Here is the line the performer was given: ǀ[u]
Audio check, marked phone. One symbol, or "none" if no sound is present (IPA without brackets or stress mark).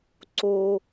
o